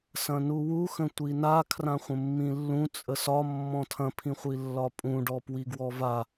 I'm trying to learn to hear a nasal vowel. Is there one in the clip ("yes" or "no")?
yes